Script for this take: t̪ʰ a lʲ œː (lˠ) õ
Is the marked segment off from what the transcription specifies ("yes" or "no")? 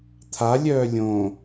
yes